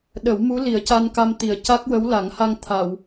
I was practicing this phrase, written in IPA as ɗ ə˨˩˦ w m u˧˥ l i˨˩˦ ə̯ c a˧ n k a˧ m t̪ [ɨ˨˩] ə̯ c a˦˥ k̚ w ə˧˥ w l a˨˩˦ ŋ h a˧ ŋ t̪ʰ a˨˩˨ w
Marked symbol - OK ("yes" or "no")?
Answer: no